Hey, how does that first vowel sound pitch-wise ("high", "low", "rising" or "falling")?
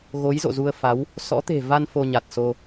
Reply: rising